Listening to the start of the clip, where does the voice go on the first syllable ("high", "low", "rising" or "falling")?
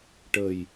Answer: low